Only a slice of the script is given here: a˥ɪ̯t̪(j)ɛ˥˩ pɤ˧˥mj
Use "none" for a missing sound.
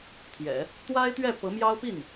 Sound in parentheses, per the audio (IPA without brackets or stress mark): ɥ